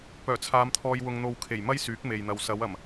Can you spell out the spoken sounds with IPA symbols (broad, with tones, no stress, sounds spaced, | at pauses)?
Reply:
p œː˨˩ t͡sʰ aː˨˧ m t̪ʰ ɔː˧ j w ʊ˧ ŋ n̪ o˧ w kʰ e˨˩ j m ɐ˥ j s yː˨˥ k̚ m e˨ j n̪ ɐ˨ w s ɐ˨˧ w ɐ˨˩ m